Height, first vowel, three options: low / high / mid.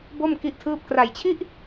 mid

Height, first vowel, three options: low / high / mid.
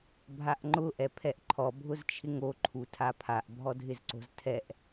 low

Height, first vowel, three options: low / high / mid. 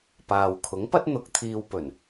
low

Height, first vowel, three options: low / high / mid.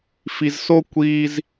high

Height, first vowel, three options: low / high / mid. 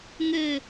mid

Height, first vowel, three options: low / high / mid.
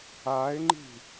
low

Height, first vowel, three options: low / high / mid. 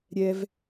mid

